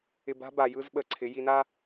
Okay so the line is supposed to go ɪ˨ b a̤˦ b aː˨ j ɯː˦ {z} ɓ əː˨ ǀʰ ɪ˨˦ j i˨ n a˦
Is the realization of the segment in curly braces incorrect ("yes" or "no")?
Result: no